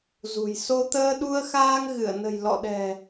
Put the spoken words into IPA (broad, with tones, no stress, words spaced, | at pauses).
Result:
zṳ˨˩j so˧ t̪əː˧ɗu˧ə̯xaː˧ŋ ɣɨ˧˩ə̯nə̤˨˩j lɔ̰˧˨ɗɛ̤˨˩